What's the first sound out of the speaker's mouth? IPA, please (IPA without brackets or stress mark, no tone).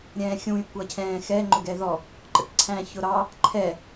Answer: ɾʲ